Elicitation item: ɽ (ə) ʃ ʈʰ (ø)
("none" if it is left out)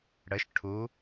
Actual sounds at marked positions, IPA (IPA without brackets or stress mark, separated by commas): ə, u